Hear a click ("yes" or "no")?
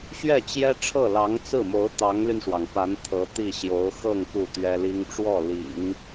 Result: no